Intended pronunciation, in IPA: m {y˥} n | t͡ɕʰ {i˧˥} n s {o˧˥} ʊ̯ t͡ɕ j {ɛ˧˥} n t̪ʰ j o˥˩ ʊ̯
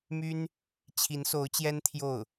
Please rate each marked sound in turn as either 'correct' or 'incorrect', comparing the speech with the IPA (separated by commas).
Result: correct, correct, correct, incorrect